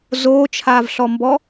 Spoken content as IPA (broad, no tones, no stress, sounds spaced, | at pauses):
z oː t͡ʃʰ aː v ɬ ɔ m b ɔ